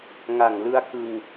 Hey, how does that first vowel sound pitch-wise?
low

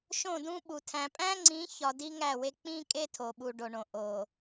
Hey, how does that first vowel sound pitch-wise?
falling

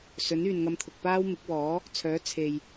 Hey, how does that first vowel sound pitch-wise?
rising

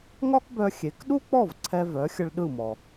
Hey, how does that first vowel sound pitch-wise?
high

